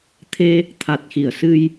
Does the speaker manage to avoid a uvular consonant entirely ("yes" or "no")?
yes